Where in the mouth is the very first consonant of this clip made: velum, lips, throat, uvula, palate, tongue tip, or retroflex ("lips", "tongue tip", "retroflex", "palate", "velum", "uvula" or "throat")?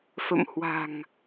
lips